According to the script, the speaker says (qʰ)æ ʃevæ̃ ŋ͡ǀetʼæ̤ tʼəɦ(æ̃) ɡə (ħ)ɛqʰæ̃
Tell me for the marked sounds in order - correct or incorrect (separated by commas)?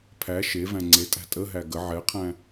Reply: incorrect, incorrect, incorrect